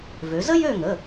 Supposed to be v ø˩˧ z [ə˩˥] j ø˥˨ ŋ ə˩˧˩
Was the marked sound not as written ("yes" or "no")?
yes